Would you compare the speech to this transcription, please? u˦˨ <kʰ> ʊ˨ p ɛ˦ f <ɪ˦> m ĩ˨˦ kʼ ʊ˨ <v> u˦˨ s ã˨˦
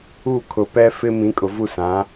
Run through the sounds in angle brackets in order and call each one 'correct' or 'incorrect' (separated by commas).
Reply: correct, correct, correct